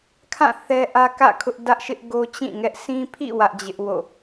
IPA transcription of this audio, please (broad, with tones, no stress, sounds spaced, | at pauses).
kʰ ã˦˨ θ ɛ˦ ʔ ä˦ k ä̰˦˨ kʰ ʊ˦ ʔ d ä˦ ʔ ʃ ɪ˦ ʔ ɡ o˦ t͡ɕ ĩ˦˨ ŋ ɛ˦ ʔ sʰ ĩ˦ pʰ ḭ˦˨ w ä˦ ʔ d͡ʑ ɪ˦ ʔ w o̰˦˨